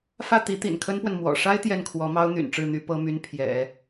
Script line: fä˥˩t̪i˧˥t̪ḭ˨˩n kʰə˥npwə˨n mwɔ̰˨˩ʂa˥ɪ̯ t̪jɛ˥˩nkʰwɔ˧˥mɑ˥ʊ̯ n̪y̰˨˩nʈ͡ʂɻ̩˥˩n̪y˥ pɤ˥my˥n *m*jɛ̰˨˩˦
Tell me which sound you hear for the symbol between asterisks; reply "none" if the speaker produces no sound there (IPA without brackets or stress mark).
pʰ